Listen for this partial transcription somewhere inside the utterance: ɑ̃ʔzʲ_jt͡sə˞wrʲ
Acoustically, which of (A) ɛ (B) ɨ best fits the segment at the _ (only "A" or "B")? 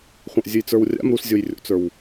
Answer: B